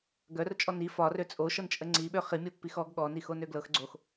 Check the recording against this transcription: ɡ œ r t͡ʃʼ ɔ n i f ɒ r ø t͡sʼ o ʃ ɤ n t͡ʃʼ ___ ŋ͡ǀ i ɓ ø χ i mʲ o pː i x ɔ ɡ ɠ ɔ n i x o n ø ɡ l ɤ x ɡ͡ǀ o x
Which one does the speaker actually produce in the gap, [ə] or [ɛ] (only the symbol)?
ə